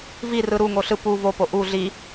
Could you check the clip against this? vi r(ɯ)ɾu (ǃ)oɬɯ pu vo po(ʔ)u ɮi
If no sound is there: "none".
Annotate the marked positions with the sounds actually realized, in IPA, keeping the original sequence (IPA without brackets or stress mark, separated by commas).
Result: ɯ, ŋ, ʔ